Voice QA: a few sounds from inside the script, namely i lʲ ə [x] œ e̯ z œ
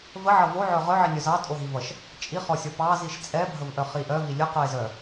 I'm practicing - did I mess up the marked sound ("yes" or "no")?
yes